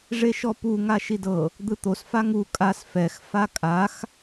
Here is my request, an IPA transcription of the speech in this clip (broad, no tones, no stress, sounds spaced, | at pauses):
ʐ e ʃ ɔ p u ŋ a ʃ i d ɤ | d̪ ɯ t̪ o s f a ŋ u kʼ a s f ɛ x f a kʼ a x